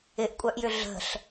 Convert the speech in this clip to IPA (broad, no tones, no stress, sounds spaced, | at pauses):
ɪ ʔ kʷʼ œ ʔ j ʏ ɮ ə̤ ɬ